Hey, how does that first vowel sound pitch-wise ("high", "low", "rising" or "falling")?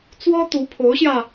high